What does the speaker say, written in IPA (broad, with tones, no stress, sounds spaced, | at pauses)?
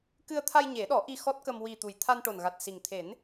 k ɨ˧ ə̯ t̪ʰ a˧ j ɲ e˨˩˦ ɗ ɔ˨˩˦ ʔ i˧ x ɔ˦˥ t̚ k ə˧ m w i˨˩ t̪ u˨˩ j t̪ʰ a˧ n ʈ o˨˩ n ɣ a˨˩ t̚ s i˨˩ ŋ t̪ʰ e˨˩˦ n